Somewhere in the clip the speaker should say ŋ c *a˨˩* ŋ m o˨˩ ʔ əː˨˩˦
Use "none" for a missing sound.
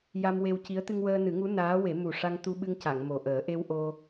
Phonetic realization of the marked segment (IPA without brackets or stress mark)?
a˨˩˨